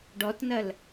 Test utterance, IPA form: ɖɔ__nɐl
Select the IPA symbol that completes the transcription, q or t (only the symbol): t